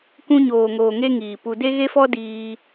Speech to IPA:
k ũ˧ ɲ oː˨ ŋ oː˨ ŋ e˦ ŋ iː˨ p u˧ d e˦ ɣ e˦ f ɔ˦ d iː˧

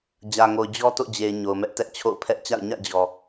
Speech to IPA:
d͡ʑ ä˨ ŋ o˨ ʊ̯ d͡ʑ ɔ˦ t o̰˦˨ d͡ʑ e˨ ɪ̯ ɲ o˨ ʊ̯ m ɛ˦ ʔ t ɛ˦ ʔ t͡ɕʰ o̰˦˨ ʊ̯ pʰ ɛ˦ ʔ t͡ɕ a̰˦˨ ʊ̯ ɲ ä̰˦˨ d͡ʑ ɔ˨

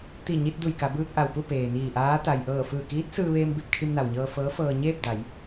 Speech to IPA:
t̪ i˧˩ ɲ i˧ t̚ d u˧˩ j k a˩˧ b ɯː˧ k̚ ʔ a˩ w p u˥˨ p eː˩ n iː˧˩ ʔ aː˧˥ t̪ a˩ j ʔ ɤː˧˩ f ɯː˧˩ k iː˧˥ t̚ s ɯː˧ ʋ eː˧ m b i˥˨ p̚ kʰ i˧ m n a˩ w ɲ ɤː˧ f ɤː˧˥ f ɤː˧ ɲ eː˥˨ p̚ d a˩˧ j

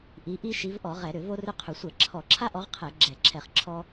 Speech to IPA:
ʔ i˨˦ ʔ i˦ ʃ i˨˦ v ʔ ɔ˧˩˧ ʁ ɛ˧˩˧ ɾ ʏ˧˩˧ v o˦ r ʏ˦ qʰ ʏ˧˩˧ sʷ ɛ˧˩˧ ǁʰ ɔ˧˩˧ ǁʰ a˦ ʔ ɔ˨˦ ʁ qʰ ɛ˧˩˧ ɡ͡ǁ ɛ˧˩˧ ǁʰ ɛ˧˩˧ χ ǁʰ ɔ˦

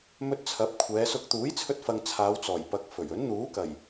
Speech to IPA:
m ɵ˧ t̚ t͡sʰ ɐ˨˥ p̚ kʷʰ ɛː˨˧ s ʊ˧ k̚ t̪ uː˨˥ j t͡sʰ ɵ˧ t̚ f ɐ˨ ŋ t͡sʰ aː˨˧ w t͡s ɔː˨˩ j p ɐ˨˥ k̚ f ɵ˨˩ ɥ ɵ˨˥ n n̪ uː˨˥ k ɐ˨˩ j

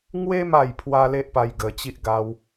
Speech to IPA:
ŋ w e˦ m a˥˧ j pʰ w a˦ l e˦ ʔ p a˧ j ɡ ə˧ t͡ɕ i˦ ʔ ɡ a˦ w

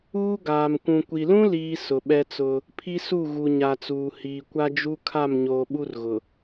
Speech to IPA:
uː˦ ɡ aː˨ m kʷ ũ˨ kʷ i˨ l ũ˦ l iː˦ s ʊ˨ ɓ ɛ˦ t͡s ʊ˦ | pʰ i˦ s u˦˨ ɣ u˨ ɲ a˨ t͡s uː˨ h iː˨ kʷ a˦ d͡ʒ u˦ kʰ a˦˨ m ɲ oː˨ ɓ u˦ r ɣ ʊ˨

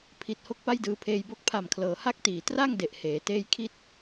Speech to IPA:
pʰ i˨˩ t̚ h o˦˥ k̚ p a˥˩ j d ɯː˧ pʰ eː˧ j b o˦˥ k̚ pʰ a˨˩ m kʰ l ɤː˩˦ h a˥˩ k̚ t iː˨˩ t r a˥˩ ŋ d e˨˩ ʔ h eː˩˦ t eː˦˥ j kʰ i˥˩ t̚

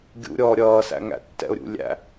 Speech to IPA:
ɡʲ ṵ ɾʲ ɔː ɾʲ ʌː s æ̰ ŋ æ̰ tː ɛ̰ ʊ̯ ɾʲ ṵ lʲ æ̰

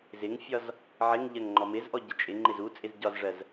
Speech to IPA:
z ɪ ŋ fʲ ɒ z | ʕ ɪ ŋ ʎ ɜ ŋ ŋ͡ǃ ɔ m ɪ z ʔ ɔ ɟ ə t͡ʃʼ ɪ ŋ͡ǃ ɪ z u t͡sʼ ɪ z ɟ ɒ z ʐ ɜ z

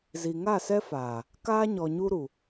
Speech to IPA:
z i˨ ŋ a˦˨ s ɛ˦ f aː˨ | k aː˦ ɲ ɔ˨ ɲ u˦ ɾ u˨

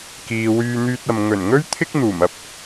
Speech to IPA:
k iː˨ w yː˧ n̪ yː˧ t̚ ɐ˨ m ŋ ɵ˨˩ n ŋ ɵ˥ ɥ t̪ʰ ɪ˥ k̚ n̪ uː˨˩ m ɐ˧ p̚

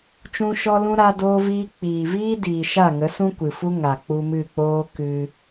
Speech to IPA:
t͡ʃ ũ˧ ʃ ɔ˧ l ũ˧ ɾ a˧ d oː˧ v iː˧ k͡p iː˨ v iː˦ d iː˨ ʃ a˦˨ ŋ ə˨˦ s ũ˦ kʷ ɨ˨ f u˦ ŋ a˨ k͡p u˧ m ɨ˦˨ k͡p oː˦ k ɨ˧

